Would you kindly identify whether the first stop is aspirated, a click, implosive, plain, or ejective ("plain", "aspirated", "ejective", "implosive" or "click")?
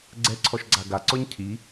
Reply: click